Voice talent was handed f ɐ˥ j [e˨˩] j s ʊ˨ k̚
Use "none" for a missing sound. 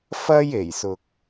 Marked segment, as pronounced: e˨˩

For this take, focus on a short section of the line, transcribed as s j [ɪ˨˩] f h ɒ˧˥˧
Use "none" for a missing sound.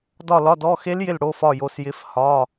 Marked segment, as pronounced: ɪ˧˥˧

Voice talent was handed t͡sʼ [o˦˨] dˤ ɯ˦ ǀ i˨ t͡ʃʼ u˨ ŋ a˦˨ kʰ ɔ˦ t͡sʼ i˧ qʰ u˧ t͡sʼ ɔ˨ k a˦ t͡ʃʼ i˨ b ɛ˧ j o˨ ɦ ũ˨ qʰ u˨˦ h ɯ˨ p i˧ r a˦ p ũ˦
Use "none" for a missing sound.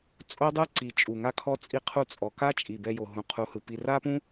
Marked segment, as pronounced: o˦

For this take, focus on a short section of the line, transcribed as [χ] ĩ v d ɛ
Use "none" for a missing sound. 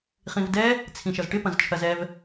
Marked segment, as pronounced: χ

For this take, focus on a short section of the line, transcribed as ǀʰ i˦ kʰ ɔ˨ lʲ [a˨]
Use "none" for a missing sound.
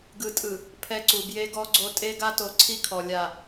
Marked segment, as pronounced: a˨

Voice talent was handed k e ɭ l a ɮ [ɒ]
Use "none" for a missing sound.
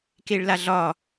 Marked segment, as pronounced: ɒ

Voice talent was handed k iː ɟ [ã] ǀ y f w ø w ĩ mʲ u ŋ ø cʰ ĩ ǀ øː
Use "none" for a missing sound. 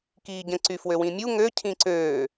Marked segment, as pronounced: ə̃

